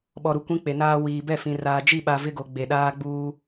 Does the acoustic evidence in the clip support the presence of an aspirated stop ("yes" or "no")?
no